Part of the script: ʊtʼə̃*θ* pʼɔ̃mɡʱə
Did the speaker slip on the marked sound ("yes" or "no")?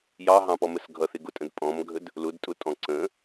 yes